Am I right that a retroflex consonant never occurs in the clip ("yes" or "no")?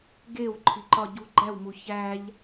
yes